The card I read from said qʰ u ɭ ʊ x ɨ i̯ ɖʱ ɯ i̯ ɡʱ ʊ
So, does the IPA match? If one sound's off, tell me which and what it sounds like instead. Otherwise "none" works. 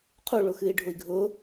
ɯ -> ʊ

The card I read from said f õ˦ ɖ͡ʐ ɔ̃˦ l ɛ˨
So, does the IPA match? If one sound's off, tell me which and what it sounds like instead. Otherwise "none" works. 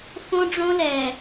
ɔ̃˦ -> õ˦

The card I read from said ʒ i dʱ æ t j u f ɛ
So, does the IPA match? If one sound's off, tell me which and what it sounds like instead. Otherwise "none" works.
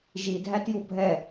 f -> bʱ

